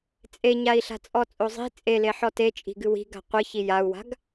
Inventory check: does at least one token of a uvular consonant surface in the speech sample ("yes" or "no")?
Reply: yes